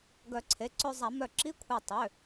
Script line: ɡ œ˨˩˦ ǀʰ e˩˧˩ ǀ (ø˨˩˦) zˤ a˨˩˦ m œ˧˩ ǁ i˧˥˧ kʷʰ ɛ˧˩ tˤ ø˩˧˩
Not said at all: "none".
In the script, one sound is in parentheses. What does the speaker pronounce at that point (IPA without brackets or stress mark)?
ø˧